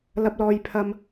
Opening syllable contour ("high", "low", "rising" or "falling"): high